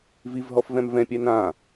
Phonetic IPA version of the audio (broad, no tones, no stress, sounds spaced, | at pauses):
v i v ɦ ɔ f v ɛ̃ m v ɛ̃ pʲ ɛ n ã